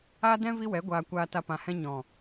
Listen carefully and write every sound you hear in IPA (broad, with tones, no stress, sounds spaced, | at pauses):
aː˦ d ɛ̃˦ v i˦ w ɛ˨˦ ɡʷ aː˨ kʷ aː˨ t a˨ p ã˨ h ɛ̃˧ ɲ ɔ̃˨